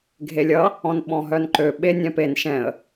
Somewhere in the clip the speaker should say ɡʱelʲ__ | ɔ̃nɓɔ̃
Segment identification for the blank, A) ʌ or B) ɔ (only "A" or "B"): A